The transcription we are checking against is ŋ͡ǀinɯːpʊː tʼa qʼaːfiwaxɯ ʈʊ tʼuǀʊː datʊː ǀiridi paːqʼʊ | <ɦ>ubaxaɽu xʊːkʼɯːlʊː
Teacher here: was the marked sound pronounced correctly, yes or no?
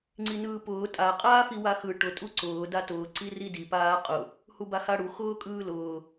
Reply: no